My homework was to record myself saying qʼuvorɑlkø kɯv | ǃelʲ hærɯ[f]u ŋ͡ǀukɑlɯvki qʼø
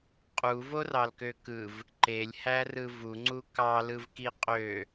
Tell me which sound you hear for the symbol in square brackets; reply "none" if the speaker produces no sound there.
v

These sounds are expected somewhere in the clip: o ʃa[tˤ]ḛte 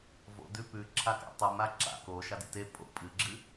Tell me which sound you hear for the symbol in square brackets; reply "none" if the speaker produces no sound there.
d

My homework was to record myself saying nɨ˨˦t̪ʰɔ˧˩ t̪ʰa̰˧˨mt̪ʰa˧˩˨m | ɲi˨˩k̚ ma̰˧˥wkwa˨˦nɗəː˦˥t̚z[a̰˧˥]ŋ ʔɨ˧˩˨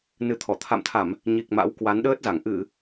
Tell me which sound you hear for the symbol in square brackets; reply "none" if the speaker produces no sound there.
a˧˩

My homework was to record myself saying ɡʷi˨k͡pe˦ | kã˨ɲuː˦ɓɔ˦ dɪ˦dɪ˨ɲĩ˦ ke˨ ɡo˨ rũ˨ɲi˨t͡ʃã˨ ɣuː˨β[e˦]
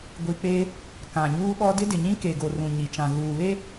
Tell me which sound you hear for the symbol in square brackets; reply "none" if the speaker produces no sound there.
e˦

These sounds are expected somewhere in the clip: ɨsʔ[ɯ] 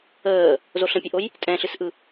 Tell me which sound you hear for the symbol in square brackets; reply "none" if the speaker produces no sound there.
ɯ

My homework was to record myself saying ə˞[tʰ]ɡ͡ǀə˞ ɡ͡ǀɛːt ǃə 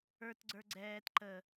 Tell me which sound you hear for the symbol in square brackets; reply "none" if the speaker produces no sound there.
t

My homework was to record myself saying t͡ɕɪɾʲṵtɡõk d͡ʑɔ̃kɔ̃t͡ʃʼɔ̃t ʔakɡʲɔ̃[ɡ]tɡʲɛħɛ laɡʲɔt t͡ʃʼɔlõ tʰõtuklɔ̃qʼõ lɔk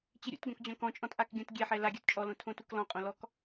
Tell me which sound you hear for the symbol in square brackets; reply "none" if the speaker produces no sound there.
none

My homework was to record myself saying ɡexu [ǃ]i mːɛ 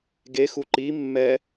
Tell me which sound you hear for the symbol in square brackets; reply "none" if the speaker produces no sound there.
ǃ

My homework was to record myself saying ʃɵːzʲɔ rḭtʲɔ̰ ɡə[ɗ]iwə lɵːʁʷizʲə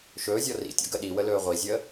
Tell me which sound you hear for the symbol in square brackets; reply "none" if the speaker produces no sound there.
ɗ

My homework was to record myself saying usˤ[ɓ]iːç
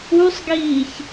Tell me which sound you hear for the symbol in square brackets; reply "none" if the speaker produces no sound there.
ɡ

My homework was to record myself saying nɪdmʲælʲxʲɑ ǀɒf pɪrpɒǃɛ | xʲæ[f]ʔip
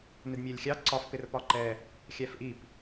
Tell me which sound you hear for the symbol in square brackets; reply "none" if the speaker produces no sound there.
f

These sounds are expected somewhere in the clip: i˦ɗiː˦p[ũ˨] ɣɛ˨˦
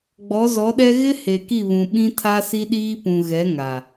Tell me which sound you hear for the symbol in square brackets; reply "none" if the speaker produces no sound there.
ũ˨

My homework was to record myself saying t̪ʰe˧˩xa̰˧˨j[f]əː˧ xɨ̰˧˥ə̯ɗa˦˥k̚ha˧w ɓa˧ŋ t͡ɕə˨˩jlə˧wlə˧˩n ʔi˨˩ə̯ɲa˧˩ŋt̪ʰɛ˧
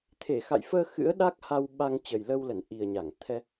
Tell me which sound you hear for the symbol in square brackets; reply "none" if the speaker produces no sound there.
f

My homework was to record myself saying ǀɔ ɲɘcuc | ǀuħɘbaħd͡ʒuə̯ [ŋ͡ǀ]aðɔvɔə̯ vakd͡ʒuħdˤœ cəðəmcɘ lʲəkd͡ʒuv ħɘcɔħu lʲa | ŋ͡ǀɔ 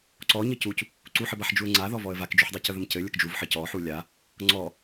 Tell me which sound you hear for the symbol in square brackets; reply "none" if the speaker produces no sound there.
ŋ͡ǀ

